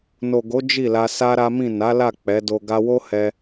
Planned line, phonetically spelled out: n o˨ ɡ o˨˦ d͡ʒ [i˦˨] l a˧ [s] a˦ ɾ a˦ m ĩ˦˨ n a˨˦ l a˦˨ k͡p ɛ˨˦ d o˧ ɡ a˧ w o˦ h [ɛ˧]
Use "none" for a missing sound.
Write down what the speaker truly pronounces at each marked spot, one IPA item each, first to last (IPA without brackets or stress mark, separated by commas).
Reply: i˦˨, s, ɛ˧